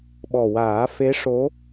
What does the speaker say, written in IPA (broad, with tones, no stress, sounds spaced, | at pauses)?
ɓ ɔ˨˩ w aː˨˩˦ f e˧˥ ʂ o˧˥